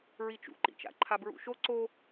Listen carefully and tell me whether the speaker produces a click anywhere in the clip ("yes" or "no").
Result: yes